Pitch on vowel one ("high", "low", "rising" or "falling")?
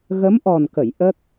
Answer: rising